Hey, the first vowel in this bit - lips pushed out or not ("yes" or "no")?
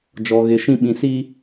yes